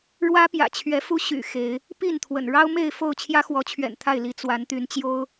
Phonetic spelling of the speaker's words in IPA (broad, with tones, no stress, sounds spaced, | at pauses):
ɻ w ä˦ p j ä̰˨˩ t͡ɕʰ ɥ ɛ˨˦ f u˦ ɕ y̰˨˩ x e˨˦ ɪ̯ | p i˥˨ n t̪ʰ w ə̰˨˩ n ɻ ɑ˦ ʊ̯ m e˥˨ ɪ̯ f o˥˨ ʊ̯ t͡ɕʰ j ä˦ x w ɔ˨˦ t͡ɕʰ ɥ ɛ̰˨˩ n t̪ʰ a˥˨ ɪ̯ l i˨˦ t͡s w a˨˦ n t̪ y˨˦ n t͡ɕ j o˦ ʊ̯